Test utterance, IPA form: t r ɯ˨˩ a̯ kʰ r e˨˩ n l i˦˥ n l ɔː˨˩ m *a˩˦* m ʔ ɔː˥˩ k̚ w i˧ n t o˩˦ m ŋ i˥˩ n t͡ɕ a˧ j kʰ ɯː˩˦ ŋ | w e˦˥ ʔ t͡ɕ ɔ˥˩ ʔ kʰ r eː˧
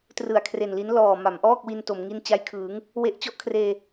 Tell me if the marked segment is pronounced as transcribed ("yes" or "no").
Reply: yes